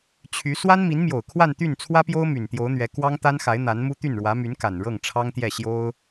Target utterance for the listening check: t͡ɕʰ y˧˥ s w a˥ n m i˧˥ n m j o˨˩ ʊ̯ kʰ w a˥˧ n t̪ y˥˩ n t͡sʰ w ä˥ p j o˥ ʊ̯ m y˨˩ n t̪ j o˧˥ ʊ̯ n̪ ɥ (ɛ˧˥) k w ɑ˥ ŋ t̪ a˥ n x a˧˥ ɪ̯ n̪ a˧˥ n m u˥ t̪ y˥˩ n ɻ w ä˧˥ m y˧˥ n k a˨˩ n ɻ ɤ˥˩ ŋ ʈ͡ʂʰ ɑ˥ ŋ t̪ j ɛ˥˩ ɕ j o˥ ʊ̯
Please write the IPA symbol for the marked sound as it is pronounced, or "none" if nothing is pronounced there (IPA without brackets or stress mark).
ɛ˧˥